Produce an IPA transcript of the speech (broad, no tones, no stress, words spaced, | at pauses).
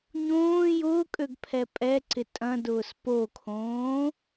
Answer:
ɲõː jʊːkʼøɡpʰɛ pʼɛǀɪ tʼɐ̃dʊːs pokʰõː